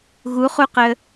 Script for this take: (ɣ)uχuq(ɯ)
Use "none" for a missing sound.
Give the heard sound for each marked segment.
ɣ, ə

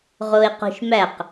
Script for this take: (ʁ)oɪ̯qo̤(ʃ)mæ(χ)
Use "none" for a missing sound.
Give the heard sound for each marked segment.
ʁ, ʃ, q

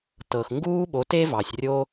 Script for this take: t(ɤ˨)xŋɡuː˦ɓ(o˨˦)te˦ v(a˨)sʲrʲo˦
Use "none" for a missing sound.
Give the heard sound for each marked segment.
ɤ˨, o˨˦, ɑ˨

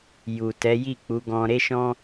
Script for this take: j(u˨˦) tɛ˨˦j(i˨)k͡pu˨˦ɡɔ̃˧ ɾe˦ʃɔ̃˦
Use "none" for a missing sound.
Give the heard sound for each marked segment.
u˨, i˦˨

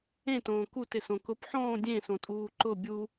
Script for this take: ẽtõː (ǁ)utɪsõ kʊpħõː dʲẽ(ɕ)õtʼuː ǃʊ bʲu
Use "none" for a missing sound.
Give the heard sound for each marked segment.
k, s

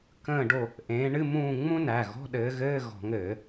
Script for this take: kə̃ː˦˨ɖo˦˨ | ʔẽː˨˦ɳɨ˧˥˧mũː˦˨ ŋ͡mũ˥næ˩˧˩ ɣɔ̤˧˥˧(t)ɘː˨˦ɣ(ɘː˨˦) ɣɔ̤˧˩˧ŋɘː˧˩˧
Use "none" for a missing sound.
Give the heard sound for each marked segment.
ɗ, ɘː˧˥˧

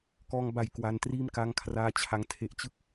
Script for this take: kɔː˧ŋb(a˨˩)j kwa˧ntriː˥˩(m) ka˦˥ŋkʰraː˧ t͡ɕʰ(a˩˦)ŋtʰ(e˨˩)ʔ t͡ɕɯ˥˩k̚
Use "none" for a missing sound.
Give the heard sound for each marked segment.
a˨˩, m, a˩˦, e˨˩

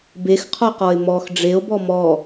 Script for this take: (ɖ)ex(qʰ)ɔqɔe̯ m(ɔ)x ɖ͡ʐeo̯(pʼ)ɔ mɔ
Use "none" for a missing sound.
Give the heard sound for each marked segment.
b, qʰ, ɔ, b

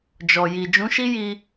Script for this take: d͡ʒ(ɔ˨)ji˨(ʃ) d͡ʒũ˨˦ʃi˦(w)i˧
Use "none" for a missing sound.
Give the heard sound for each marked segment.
ɔ˨, none, j

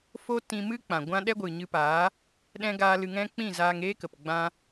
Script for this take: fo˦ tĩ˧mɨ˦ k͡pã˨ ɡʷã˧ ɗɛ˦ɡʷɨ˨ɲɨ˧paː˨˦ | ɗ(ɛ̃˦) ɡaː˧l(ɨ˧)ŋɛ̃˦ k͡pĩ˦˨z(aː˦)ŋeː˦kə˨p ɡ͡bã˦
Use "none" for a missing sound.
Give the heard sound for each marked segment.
ɛ̃˦, ɨ˧, aː˧

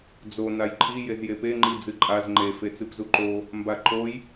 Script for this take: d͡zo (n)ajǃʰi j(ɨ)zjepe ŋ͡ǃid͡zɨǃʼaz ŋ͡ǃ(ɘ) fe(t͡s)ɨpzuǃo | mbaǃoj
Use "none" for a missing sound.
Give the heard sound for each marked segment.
n, e, e, t͡s

